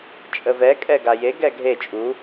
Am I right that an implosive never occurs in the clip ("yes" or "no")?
yes